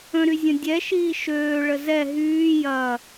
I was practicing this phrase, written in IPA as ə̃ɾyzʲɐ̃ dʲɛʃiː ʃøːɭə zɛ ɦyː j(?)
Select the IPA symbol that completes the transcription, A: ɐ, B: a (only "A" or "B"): A